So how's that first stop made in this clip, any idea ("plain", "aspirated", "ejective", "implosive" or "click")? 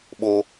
implosive